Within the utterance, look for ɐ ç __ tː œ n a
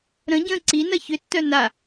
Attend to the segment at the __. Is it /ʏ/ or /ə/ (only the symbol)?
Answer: ʏ